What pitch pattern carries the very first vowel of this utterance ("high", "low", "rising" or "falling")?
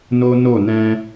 high